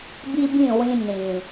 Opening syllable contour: high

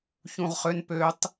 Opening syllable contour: low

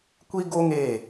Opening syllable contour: high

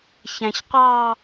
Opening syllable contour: low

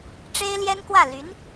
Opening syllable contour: high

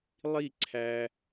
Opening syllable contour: falling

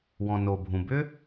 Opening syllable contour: low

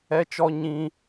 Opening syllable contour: high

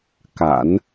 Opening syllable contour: low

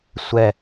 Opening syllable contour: falling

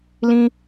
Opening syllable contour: high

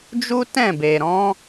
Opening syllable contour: high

